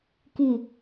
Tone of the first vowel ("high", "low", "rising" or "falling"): low